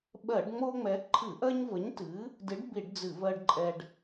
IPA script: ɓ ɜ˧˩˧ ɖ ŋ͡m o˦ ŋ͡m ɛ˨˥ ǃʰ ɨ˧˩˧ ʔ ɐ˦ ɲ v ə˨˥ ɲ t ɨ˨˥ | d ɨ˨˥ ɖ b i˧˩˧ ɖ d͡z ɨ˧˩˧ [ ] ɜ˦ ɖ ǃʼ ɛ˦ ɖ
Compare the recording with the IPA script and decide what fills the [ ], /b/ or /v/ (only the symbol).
v